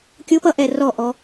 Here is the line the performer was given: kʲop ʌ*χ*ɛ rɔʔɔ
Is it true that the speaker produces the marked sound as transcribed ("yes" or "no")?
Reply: no